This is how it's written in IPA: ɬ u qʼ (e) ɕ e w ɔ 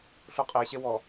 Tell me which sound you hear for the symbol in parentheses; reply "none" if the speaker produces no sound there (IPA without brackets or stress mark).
e